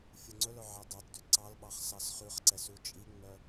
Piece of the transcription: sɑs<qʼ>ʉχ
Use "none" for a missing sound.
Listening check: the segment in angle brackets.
χ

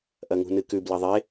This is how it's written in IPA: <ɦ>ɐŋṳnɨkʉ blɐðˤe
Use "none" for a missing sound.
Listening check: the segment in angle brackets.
ʔ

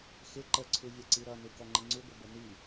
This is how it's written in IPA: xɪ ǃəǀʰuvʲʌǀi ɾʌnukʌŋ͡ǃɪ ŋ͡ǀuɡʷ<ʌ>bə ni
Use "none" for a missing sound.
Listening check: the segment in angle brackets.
ə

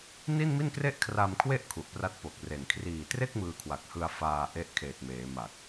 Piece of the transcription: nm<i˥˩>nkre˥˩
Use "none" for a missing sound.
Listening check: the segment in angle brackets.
i˥˩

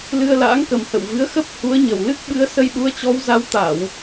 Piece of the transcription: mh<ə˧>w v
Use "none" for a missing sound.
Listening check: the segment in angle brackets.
ə̰˧˨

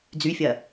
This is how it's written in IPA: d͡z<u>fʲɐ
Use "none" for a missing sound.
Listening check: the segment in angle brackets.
y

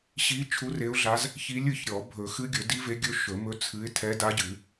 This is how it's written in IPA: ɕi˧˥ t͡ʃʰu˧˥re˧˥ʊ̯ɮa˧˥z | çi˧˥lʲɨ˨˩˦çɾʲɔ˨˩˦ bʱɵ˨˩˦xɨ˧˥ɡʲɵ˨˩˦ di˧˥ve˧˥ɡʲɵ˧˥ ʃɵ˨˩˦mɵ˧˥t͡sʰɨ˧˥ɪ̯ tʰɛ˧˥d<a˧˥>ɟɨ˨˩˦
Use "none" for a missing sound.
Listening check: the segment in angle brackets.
a˧˥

